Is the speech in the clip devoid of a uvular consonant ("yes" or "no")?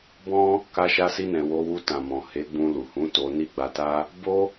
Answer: yes